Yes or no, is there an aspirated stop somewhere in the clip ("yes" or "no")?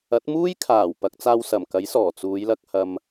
yes